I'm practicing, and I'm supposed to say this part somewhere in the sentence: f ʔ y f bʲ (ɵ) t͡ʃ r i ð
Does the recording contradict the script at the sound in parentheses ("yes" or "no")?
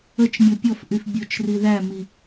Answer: yes